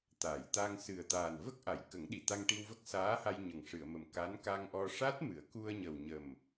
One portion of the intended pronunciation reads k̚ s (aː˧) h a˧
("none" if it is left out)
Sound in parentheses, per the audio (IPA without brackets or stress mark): aː˧˥